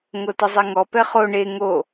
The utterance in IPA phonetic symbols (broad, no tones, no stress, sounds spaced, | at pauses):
ŋ o t ə zˤ e ŋ ɔ p ɛ χ o ɳ e ŋ o